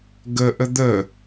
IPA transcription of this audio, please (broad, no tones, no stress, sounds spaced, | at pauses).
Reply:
ɡ ə ʔ ə d̪ ə